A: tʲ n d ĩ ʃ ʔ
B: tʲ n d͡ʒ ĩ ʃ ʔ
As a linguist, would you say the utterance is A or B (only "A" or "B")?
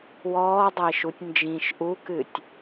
B